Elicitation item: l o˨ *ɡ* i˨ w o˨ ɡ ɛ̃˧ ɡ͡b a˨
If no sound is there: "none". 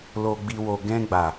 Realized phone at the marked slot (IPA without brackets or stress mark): ɡ͡b